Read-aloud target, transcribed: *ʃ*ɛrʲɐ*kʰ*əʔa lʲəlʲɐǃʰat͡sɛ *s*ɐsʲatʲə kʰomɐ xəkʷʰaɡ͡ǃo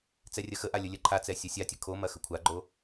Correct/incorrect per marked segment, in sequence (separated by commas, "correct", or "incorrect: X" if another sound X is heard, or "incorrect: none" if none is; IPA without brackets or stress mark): incorrect: t͡s, incorrect: x, incorrect: sʲ